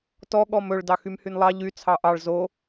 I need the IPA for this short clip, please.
t ɔ ɠ ɔ m ɵ ɭ d ɑ x y m h y n lˠ ɑ ʎ y t͡sʰ ɑ ʔ ɑ ɭ z o

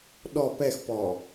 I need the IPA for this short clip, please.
ɗ ɔ p ɛ x p ɔ

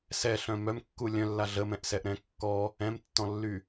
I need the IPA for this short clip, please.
s ɛ ɬ œ̃ m œ m kː u lʲ œ̃ lː a ɮ ə m ɛ̃ ʔ s ɛ ʔ ɾ ɛ̃ kː ɔ | ɛ̃ m tː ɔ̃ lː y

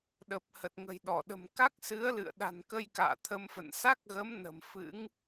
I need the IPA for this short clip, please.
ɗ ə˨˩ p̚ h ə˨˩ t̚ ŋ ə̤˨˩ j ɗ ɔ˧˩ ɗ ə̤˨˩ m k a˦˥ k̚ s ɨ˨˦ ə̯ l ɨ̰˧˨ ə̯ ɗ a̤˨˩ n k ə˧ j k a̰ː˧˨ t̪ʰ ə˧ m f ə̰˧˨ n s a˦˥ k̚ ɣ ə˨˦ m n ə̤˨˩ m f ɨ̰˧˥ ŋ

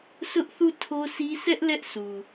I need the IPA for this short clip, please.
s ʊ˦ ʔ θ u˦˨ tʰ o˦ s i˦ sʰ ɛ˦ ʔ l ɛ˦ ʔ s u˨

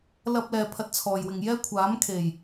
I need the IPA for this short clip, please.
l ɐ˥ p̚ l ɛː˧ pʰ ɐ˧ t̚ t͡sʰ ɔː˨ j w ɪ˨ ŋ j ɛː˥ kʷʰ aː˨˥ m kʰ e˨˩ j

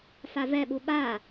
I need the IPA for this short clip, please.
f a v ɛ ɓ u ɓ a

